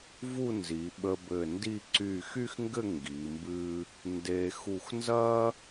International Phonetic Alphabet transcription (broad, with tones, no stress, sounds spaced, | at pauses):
v u˥˧ n z i˩˧ ɓ ə˧ b ɘ˧˩ n d i˥˧ ǀ y˧˩ x y˥ x ŋ ɡ ɘ˥˧ ŋ ɡ i˩˧ m b ɨ˥ | n d e˧ x u˧˩ x n z ɐ˥